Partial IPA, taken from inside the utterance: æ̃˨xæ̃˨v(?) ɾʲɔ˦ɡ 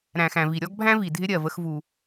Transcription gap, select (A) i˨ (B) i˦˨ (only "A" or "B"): A